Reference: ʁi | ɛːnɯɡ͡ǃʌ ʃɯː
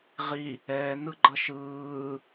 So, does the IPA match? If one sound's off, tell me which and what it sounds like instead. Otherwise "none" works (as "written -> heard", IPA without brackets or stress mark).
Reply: none